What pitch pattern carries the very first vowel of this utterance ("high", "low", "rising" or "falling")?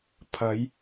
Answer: rising